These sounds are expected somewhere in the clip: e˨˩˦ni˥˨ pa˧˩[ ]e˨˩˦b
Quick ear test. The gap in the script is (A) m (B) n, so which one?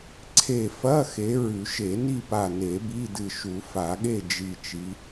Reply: B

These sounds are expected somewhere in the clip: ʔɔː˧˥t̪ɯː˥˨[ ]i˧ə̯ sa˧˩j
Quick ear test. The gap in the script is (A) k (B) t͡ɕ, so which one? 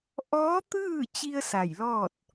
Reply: B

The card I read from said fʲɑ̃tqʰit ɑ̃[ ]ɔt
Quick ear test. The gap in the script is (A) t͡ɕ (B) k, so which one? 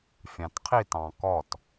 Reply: B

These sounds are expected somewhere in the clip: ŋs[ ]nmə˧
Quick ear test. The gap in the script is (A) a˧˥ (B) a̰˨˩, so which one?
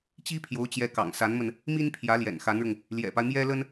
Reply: A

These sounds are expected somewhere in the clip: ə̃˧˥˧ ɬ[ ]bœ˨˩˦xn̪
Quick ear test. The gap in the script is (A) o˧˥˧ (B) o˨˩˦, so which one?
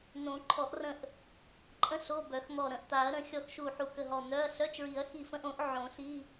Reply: A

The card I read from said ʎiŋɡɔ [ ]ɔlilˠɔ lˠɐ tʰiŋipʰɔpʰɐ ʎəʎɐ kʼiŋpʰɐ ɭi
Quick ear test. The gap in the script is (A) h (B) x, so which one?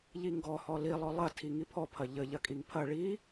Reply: A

